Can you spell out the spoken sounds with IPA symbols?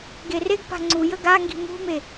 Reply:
ɡereɡ pa̤ŋ͡ǀu jəɡa ŋɡi̤mṳme

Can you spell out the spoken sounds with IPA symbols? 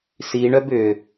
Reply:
siɳœb ʏ

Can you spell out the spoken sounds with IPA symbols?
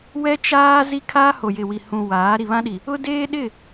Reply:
wɛ˦t͡ʃaː˦ zi˦kʰaː˦ ho˨jɪ˨wi˨ hũ˨waː˨˦ ɾi˨βã˦ɗi˨ | ʊ˦deː˦ɗɪ˦˨

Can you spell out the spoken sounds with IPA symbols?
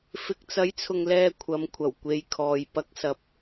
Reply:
fɪ˨k̚t͡sɐ˨˥jt͡sʰʊ˨ŋlɛː˨ kʷʰɐ˨˧m kʷʰɐ˨˩w kʷe˨jkʰɔː˨j pɐ˨˥k̚sɐ˨˥p̚

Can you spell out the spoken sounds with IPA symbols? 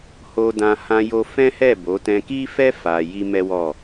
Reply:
ho˧dã˧ hã˧jo˧fɛ̃˦hɛ˦˨ bo˨˦ tɛ̃˧ki˦fɛ˦ fa˧ ji˦mɛ˦wɔ˦˨

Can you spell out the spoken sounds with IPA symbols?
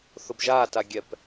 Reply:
θʊbʒaːta ɡʲɛp

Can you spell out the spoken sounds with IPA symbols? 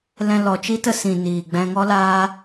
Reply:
lɛ̃˧ lɔ˨t͡ʃi˦ tə˧sĩ˨ niː˨ɡ͡bɛ̃˧ŋɔ˦laː˦

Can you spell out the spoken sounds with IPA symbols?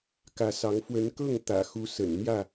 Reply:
kä˨˦sɑ˨˦ŋ fwə˨˦nkɤ˥˨ŋ t̪ä̰˨˩ xu˨˦sə̰˨˩nn̪jä˥˨

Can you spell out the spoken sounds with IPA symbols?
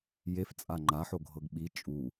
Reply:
jeft͡sʼa ŋ͡ǃaħoɡʱɤɡ ɓi t͡ʃʼu

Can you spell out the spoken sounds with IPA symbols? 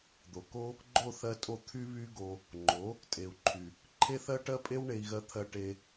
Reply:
d̪o˨ko˦ | ɡ͡ǃo˦˨θɜ˧tʼo˧ t̪ʰy˦βy˦ɡo˧ | ŋ͡ǃo˨˦ | tʼe˨u̯ǃʰy˨ | ǃʰe˦θɜ˦ʈɜ˦ pʼe˦wɳe˧i̯ɣɜ˧t̪ʰɜ˧ ʈe˧

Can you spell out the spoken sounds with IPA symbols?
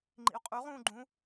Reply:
ŋ͡ǃḭu̯qʼuʁ ũːɡ͡ǃũ

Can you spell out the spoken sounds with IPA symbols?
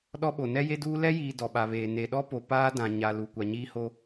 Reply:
ɗɔ˦ɓo˨ nɛ˦je˦duː˦ lɛ˦jiː˨ dɔ˨ɓa˨βeː˨ ne˨ɗɔ˦po˨ paː˦dã˨ ɲa˨ lu˨kʷa˨ɲiː˦ho˦

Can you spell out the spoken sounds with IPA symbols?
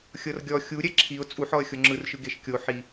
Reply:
xʲɤrɡʲɔ xʲuɾʲɛ ǁʰiʊ̯ t͡sʼuħɔə̯ xʲoŋ͡ǁɯrʃɯ ɡeʃkʲo ħi

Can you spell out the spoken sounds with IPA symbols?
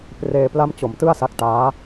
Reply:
preː˧pla˥˩mt͡ɕo˨˩mtɯ˥˩a̯ sa˦˥k̚taː˦˥

